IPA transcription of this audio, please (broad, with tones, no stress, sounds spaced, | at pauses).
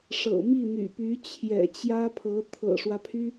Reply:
ʂ ɤ̰˨˩ m i˥˩ n̪ y̰˨˩ p y˧˥ t͡ɕʰ j ɛ̰˨˩ t͡ɕ j ä˥ pʰ ɤ˧˥ t̪ʰ ɤ̰˨˩ ʂ w ä˦ pʰ y˥